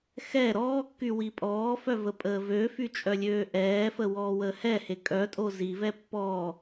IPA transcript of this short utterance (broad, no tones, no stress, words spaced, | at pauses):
xɛ ɾɔːkːy wipʼɔːfœ vəpʼəːvøfy t͡ʃʼœlʲøːʔɛːfə wɔːwəːhɛhe kʼœtʼo zivɛ pːɔː